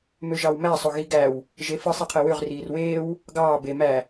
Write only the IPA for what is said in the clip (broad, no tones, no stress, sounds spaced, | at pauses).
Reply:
m ø ʒ ɑ w m æ sˤ o ɣ i ɡ æ w | ʒ e f ɯ sˤ e qʰ e w ø ʁ r iː r w eː w | ɡ ɑː b e m æ